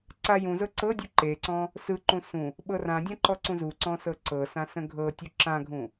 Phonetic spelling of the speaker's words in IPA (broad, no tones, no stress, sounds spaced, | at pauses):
ǀ a j ũ z ɤ ǀ ɤ dʲ u ǃ e ǀ ɔ̃ | s ɯ ǃ ũ s ũ | ɓ ɤ r ã dʲ ã ǃ ɔ ǀ ũ z u ǀ ɔ̃ s ɤ ǀ ɤ s ã s ə̃ ɡʱ ɤ tʲ u ǁ ã ɡʱ ũ